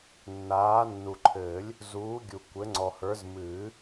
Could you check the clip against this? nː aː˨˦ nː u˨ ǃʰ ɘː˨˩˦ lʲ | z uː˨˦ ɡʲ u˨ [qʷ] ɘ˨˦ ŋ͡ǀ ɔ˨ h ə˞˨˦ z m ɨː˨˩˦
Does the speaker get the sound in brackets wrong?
yes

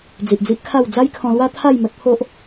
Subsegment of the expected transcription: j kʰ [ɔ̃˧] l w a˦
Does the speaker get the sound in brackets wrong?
no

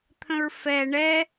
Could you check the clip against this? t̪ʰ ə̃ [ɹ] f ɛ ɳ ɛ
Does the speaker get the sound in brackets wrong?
no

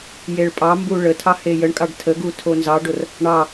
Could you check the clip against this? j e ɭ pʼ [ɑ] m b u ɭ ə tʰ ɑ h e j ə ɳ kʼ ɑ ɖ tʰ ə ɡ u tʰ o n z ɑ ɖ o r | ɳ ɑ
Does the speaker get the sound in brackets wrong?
no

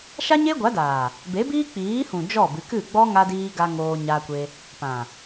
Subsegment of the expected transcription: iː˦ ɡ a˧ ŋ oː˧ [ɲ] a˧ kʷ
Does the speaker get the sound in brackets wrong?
no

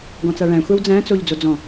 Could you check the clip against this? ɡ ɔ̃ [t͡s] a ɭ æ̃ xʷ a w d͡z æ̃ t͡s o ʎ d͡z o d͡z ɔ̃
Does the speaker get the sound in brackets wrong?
no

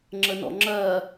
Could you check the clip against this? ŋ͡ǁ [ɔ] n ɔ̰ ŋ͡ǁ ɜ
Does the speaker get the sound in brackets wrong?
yes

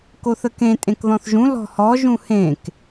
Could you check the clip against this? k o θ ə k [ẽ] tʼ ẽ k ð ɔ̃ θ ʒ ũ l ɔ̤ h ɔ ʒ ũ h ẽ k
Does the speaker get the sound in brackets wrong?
no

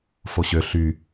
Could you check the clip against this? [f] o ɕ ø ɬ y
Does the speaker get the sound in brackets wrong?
no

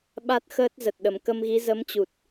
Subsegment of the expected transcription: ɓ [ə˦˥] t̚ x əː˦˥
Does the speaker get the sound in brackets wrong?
yes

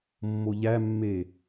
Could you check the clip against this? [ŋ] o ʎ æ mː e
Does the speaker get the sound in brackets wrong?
yes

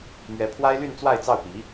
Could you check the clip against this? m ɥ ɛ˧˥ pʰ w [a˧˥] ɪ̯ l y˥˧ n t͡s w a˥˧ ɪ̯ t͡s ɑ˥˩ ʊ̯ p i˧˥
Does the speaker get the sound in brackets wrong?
yes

